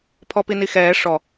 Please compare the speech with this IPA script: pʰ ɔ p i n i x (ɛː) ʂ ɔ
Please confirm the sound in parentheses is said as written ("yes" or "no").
yes